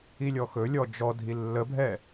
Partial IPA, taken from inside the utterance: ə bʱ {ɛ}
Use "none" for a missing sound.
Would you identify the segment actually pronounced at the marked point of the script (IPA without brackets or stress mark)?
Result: ɛ